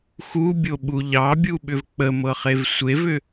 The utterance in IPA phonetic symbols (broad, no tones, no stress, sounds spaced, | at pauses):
x u bʲ o ɓ u ʎ ɑ bʲ u ɓ ʏ v k͡p ə m ɤ χ e v sʷ e v ʏ